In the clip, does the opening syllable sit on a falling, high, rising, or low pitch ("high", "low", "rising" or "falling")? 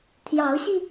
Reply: rising